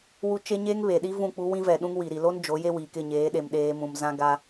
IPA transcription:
w u˦ t͡ʃ e˦ ɲ eː˦ ŋ β e˨ ɗ i˦ v ũ˦˨ k͡p u˦ w ĩ˦ v ɛ˨ ɗ ũ˦ ŋ w i˨ ɾ i˨ l o˦ n d͡ʒ o˨˦ j e˦ w iː˨ k ɪ˦˨ ɲ eː˨˦ ɗ e˨ m ɗ eː˦ m ũ˨ m z ã˦ ɡ a˦

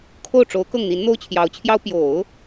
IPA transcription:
kʰ o˥˩ ʊ̯ ʈ͡ʂ o˧˥ ʊ̯ k ɤ˥˩ ŋ n̪ i˧˥ n n̪ o˥ ʊ̯ t͡ɕʰ j ɑ˧˥ ʊ̯ t͡ɕʰ j ɑ˥ ʊ̯ p j o˨˩˦ ʊ̯

